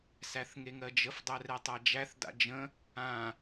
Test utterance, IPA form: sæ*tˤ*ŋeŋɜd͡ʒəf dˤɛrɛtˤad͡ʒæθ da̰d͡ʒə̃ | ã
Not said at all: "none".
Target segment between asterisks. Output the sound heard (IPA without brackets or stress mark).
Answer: θ